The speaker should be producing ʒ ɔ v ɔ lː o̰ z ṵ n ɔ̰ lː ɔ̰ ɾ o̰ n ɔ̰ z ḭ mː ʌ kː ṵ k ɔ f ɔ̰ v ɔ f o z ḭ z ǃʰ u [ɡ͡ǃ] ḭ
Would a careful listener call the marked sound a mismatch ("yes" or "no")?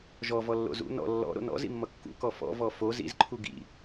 yes